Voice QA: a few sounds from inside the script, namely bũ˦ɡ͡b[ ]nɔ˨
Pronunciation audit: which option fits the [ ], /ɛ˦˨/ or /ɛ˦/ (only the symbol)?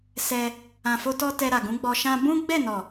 ɛ˦˨